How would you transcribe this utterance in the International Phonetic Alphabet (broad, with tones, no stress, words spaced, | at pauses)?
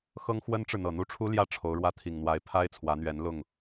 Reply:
xɤ˥ŋxwə˥nʈ͡ʂɻ̩˨n̪ɤ˨˩ n̪u˥˩ʈ͡ʂʰu˥ljä˥˩ ʈ͡ʂʰo˧˥ʊ̯ɻwä˥˩ t̪ʰi˨˩ŋn̪wa˧˥ɪ̯ pʰa˥ɪ̯t͡sʰwä˧˥n̪ɥɛ˧˥n lʊ˥˩ŋ